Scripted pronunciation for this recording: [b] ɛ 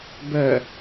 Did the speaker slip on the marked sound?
no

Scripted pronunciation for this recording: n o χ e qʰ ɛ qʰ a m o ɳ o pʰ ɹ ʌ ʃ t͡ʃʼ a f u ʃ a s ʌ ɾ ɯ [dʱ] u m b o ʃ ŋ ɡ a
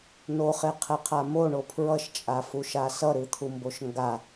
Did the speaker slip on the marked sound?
yes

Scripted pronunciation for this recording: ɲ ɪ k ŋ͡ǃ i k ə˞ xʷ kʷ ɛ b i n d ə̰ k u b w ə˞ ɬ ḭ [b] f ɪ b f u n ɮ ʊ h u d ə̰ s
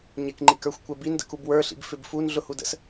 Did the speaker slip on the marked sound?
no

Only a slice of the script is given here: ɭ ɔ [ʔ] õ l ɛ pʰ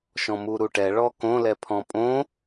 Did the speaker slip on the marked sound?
yes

